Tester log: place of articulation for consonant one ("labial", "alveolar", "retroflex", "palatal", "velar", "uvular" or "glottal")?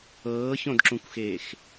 palatal